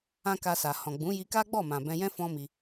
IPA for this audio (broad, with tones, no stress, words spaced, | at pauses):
ã˦ka˧sa˨ hɔ̃˨ɡ͡bũ˨˦ji˧ka˦ ɡ͡bɔ˦˨mã˨bɛ̃˧jɛ̃˦ fɔ̃˦mi˧